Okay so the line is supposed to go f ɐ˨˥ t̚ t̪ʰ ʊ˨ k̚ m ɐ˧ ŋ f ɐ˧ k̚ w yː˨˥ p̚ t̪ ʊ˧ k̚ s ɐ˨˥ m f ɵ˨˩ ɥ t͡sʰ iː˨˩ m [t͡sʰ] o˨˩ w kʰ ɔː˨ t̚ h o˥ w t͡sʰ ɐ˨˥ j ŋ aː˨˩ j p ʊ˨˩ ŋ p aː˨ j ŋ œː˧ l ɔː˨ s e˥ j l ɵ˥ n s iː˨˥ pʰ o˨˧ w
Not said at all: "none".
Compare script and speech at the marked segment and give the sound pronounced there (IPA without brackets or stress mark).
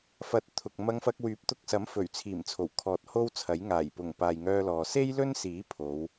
t͡sʰ